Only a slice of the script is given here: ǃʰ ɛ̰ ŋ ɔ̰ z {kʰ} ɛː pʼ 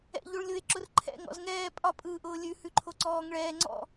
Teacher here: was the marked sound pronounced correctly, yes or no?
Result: no